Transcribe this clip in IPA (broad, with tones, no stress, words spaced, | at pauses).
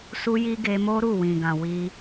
su˧ji˧ ɡe˧mo˦ ɾu˦˨wĩ˨ɡã˨ wi˧